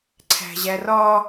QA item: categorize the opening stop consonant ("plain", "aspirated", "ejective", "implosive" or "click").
click